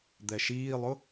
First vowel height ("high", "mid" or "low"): mid